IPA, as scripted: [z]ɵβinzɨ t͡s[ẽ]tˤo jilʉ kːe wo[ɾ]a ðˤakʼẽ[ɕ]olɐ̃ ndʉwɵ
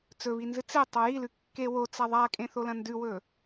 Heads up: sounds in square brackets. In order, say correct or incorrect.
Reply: incorrect: t͡s, incorrect: e, incorrect: t͡s, incorrect: θ

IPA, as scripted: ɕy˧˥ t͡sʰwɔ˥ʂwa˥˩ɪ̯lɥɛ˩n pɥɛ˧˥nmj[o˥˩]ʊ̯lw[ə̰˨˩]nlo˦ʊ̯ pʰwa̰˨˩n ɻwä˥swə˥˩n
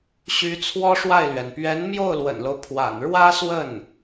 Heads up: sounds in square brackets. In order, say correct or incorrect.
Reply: correct, correct

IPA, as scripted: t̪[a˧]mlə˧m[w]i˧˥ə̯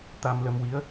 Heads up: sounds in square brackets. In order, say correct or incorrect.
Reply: correct, correct

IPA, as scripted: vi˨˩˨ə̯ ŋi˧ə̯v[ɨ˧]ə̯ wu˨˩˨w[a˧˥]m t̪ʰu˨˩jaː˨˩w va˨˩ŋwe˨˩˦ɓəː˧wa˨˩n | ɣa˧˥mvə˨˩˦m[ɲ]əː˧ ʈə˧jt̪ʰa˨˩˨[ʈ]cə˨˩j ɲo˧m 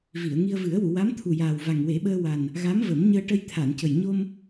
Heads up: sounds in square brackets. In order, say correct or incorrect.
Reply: incorrect: ɨ˨˩˦, correct, correct, incorrect: n

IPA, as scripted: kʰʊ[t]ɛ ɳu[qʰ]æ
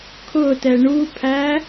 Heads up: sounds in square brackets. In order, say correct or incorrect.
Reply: correct, incorrect: pʰ

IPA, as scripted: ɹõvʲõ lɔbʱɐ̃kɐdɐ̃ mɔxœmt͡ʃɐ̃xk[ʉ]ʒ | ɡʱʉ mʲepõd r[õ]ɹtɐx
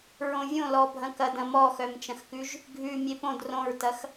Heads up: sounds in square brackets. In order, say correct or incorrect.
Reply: correct, correct

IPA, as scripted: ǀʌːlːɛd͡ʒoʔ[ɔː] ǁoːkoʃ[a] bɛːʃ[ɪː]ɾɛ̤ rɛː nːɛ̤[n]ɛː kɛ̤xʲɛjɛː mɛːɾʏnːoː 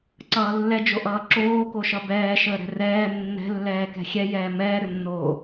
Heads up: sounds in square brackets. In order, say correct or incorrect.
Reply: incorrect: ʌː, incorrect: ʌ, incorrect: əː, incorrect: lː

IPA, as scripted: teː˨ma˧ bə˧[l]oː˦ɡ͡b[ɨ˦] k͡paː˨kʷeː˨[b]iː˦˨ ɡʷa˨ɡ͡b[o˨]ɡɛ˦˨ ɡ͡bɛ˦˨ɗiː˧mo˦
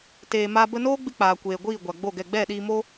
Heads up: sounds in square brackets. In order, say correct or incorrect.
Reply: incorrect: n, incorrect: ɨ˧, incorrect: ɡʷ, incorrect: o˦˨

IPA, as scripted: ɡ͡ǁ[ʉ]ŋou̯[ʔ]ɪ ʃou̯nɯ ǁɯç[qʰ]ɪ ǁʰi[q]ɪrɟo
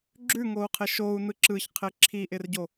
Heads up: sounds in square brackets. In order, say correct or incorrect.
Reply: correct, incorrect: qʰ, correct, incorrect: ʔ

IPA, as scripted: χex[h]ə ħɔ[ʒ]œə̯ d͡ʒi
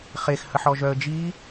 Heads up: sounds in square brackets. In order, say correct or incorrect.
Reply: correct, correct

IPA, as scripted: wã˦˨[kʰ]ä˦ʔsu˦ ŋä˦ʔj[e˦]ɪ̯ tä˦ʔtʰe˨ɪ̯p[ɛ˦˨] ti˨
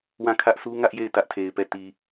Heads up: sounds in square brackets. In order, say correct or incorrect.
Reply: correct, incorrect: e˦˨, correct

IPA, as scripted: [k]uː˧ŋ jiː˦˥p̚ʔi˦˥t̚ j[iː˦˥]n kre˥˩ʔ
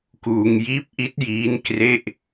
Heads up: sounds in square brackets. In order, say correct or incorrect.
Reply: correct, correct

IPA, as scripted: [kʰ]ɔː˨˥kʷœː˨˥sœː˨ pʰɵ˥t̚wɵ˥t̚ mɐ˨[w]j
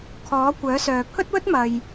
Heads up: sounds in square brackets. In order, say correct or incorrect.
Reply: correct, incorrect: none

